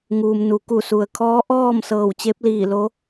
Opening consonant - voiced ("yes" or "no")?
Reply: yes